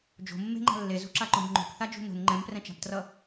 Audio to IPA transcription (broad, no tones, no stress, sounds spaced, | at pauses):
d͡ʒ o̤ mː e̤ ŋ͡ǃ a̤ lː e z ṳ ǁ a ǃ õ b ŋ͡ǃ o̤ p θ a d͡ʒ ṳ n o̤ n ŋ͡ǃ ɛ̃ m p r ɛ̃ t͡ʃ a̤ p t r ʌ